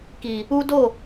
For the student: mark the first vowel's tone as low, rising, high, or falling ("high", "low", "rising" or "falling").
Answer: low